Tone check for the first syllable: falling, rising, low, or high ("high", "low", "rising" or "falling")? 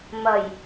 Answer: low